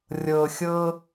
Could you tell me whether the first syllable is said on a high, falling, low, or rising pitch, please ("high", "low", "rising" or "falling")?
low